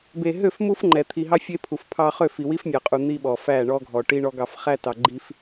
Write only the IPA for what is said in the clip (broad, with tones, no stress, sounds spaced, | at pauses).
b e˨ ɦ ø˦˨ f m u˦ f ŋ͡ǃ ɛ˨ t̪ʰ i˨ ɦ ɑ˦ fʲ e˦ pʰ u˨ f pʰ ɑ˦ χ ø˦˨ f i˨ w i˦ f mʲ ɑ˨ qʼ u˨ n̪ i˦ ɓ ɔ˨ f æ˦˨ ɳ ɔ˦ ɡʱ ɔ˨ ʈ i˦ ɳ ɔ˦ ɡ ɑ˨ f χ æ˦ t ɑ˨ ɡ͡ǃ i˦ f